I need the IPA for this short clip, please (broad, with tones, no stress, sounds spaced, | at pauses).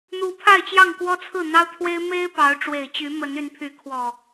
n̪ u˨˦ pʰ a˥˨ ɪ̯ t͡ɕ j ɑ˥˨ ŋ k w ɔ˦ t͡sʰ ɹ̩˥˨ n̪ ɑ˦ ʊ̯ t̪ʰ w e˦ ɪ̯ m e˦ ɪ̯ p ɑ˨˦ ʊ̯ ʈ͡ʂ w e˨˩ ɪ̯ t͡ɕ y˨˦ m ə˨˦ n y˨˦ n pʰ y˨˦ kʰ w ɔ˨˩